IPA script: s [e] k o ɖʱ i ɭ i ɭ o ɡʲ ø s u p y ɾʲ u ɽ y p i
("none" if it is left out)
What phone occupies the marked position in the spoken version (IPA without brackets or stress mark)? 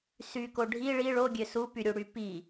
y